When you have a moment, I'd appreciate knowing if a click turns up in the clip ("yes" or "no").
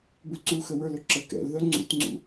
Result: yes